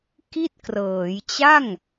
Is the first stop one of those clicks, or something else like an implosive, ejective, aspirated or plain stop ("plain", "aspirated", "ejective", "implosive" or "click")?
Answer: plain